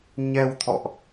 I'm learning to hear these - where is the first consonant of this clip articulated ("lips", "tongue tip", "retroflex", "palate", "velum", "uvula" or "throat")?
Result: palate